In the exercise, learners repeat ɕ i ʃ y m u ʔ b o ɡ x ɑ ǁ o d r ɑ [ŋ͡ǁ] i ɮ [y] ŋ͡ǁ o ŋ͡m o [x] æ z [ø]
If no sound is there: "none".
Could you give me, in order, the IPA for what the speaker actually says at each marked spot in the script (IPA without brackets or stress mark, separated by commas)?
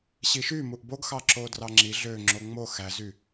ŋ͡ǁ, ø, x, y